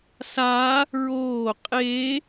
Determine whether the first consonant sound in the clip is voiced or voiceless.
voiceless